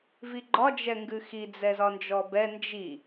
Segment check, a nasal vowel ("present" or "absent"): absent